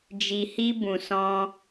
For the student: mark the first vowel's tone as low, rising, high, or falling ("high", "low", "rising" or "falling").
low